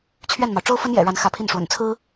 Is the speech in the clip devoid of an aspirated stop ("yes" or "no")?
no